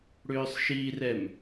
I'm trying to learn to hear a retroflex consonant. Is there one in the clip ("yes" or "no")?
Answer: yes